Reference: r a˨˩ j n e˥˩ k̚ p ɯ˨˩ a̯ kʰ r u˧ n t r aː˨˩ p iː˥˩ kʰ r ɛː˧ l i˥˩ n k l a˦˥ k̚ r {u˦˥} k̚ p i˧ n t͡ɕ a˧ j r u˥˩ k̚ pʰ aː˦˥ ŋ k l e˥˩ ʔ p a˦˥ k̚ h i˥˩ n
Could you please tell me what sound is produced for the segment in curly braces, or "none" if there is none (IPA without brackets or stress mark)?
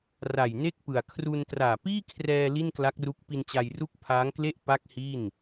u˦˥